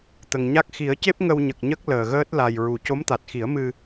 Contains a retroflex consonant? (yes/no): no